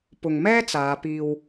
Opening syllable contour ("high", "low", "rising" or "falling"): low